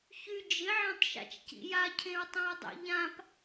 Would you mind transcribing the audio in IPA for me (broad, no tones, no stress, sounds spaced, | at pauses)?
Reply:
ç y d͡ʒ ɪ ʕ ã tˤ ʃ a̰ t͡ʃ c ḭ j a cʰ ẽ ɹ tˤ ã ɹ dˤ ḛ ʎ ã p